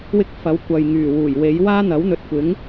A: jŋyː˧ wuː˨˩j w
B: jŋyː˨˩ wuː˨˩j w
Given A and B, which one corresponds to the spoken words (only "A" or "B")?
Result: B